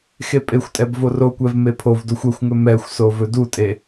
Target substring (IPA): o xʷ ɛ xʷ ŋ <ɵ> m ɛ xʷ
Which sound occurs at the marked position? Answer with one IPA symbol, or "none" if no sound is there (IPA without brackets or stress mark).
ɵ